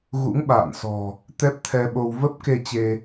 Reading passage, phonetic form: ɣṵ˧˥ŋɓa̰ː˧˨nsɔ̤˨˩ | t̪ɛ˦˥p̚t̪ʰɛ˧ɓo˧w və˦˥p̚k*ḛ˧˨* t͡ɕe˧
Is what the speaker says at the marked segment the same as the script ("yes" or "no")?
no